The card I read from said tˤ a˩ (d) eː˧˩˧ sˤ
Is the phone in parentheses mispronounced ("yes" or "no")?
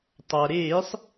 yes